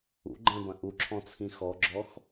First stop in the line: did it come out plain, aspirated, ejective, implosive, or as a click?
click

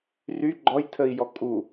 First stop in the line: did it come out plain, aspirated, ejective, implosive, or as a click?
click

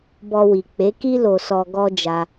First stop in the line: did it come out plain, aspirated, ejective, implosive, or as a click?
plain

